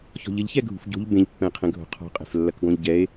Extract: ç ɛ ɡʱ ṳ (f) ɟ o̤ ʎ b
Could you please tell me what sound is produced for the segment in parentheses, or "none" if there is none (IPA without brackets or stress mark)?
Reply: f